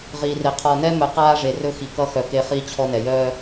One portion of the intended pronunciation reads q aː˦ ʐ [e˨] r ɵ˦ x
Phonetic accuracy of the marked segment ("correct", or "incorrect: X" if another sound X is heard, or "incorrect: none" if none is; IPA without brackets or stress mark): correct